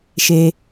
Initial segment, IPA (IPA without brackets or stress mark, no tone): ʃ